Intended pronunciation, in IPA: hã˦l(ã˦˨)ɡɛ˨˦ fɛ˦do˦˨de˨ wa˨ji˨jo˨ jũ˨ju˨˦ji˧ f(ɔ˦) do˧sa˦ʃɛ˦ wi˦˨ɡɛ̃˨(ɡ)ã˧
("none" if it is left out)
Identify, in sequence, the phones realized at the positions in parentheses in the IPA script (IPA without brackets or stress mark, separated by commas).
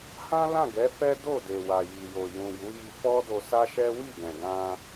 ã˦˨, ɔ˦, ɡ